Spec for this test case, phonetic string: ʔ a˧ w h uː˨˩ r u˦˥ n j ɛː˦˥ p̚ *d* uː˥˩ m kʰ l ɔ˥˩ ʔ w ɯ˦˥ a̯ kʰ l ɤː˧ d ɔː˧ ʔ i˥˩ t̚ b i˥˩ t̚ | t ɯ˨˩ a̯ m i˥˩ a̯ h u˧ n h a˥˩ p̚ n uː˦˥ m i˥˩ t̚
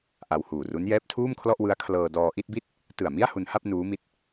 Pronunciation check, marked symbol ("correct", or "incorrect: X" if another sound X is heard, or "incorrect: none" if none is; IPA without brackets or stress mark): incorrect: tʰ